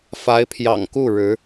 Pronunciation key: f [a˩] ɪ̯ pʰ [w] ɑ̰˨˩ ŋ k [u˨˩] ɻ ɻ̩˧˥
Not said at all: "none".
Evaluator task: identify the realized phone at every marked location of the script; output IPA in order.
a˧˥, j, u˥˩

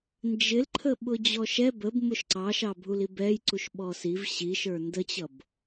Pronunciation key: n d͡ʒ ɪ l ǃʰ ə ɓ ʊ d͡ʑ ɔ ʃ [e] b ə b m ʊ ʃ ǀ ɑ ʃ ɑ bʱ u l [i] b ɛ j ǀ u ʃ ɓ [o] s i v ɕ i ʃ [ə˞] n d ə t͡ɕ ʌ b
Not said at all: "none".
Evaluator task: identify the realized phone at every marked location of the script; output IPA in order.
ɛ, i, ɔ, ə˞

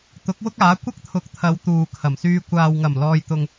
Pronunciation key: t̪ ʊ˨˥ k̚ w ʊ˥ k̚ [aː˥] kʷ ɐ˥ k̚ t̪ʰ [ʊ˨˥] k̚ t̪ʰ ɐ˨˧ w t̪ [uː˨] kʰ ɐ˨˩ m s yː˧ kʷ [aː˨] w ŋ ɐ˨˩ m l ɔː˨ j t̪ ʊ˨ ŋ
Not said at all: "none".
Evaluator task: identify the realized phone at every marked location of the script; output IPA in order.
aː˨˥, ʊ˨˥, uː˨, aː˨

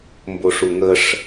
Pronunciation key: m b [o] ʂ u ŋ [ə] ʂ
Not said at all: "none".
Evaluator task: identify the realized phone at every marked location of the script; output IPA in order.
o, ə

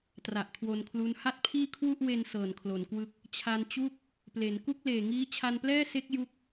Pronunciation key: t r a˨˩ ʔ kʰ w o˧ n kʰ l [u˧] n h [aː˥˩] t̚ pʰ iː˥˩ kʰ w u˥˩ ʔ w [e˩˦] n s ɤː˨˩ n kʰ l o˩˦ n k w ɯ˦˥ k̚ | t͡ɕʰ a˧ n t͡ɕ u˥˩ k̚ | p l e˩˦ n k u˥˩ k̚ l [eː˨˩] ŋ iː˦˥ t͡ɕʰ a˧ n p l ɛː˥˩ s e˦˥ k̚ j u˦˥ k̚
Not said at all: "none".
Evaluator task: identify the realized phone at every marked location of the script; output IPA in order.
u˦˥, a˥˩, e˧, eː˨˩

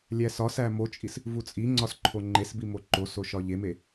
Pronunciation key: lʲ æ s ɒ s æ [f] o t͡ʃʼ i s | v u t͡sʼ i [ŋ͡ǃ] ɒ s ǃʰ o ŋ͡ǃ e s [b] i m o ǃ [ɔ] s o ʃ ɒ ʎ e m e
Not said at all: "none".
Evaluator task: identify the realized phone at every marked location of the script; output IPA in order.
m, ŋ͡ǀ, b, o

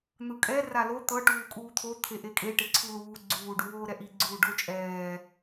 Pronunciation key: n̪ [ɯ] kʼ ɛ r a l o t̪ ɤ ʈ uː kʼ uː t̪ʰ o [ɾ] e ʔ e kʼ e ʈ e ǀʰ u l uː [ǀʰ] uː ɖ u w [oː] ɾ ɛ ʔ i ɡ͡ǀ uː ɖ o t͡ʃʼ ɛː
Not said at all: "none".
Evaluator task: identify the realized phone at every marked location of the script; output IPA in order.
ɯ, t̪ʰ, ɡ͡ǀ, oː

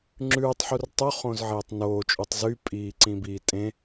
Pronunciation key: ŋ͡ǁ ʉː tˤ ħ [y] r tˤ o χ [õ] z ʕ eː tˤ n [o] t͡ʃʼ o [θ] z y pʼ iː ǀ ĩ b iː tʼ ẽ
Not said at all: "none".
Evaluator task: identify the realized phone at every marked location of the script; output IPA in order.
u, õ, oː, tˤ

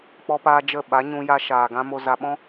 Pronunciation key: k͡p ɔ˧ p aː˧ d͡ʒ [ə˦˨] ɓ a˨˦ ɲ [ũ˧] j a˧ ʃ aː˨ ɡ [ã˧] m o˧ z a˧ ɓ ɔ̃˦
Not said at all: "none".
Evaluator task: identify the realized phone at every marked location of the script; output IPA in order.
ə˦˨, ũ˧, ã˧

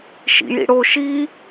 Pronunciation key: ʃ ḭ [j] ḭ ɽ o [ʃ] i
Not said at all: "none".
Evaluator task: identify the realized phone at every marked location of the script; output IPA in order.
j, ʃ

